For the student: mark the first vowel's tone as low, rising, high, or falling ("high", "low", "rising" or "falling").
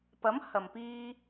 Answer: rising